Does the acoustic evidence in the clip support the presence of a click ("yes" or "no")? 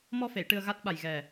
no